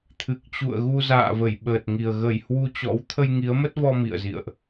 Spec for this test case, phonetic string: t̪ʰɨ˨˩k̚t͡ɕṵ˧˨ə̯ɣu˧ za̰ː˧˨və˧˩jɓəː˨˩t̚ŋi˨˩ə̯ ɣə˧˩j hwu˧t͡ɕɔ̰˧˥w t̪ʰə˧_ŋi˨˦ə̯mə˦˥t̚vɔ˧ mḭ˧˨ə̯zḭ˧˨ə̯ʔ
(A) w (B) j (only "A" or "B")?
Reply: B